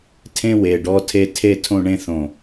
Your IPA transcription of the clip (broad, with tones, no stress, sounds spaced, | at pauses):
tʰ ẽ˦ w e˨ ɖ ɔ˦ tʰ e˦ tʰ e˦ tʰ õ˦˨ ɳ ẽ˦ θ õ˨